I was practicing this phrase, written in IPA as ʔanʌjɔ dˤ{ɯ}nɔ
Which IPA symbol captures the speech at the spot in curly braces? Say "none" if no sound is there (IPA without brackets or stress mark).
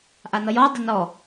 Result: ə